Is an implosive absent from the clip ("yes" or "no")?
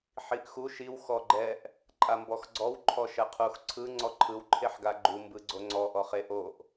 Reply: yes